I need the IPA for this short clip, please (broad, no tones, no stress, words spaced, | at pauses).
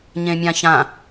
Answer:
ɲẽmʲãçã